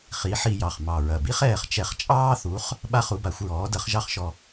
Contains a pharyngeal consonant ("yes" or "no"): yes